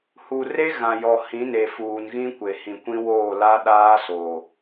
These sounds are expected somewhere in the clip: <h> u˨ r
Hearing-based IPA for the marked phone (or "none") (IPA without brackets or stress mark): h